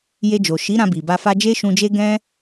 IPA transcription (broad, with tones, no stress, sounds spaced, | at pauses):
j e˧ d͡ʒ o˨ ʃ i˨˦ ɾ ã˧ b i˨ b a˧ f a˦ d͡ʒ e˦ ʃ ũ˧ d͡ʒ e˦ ɡ ɛ̃˦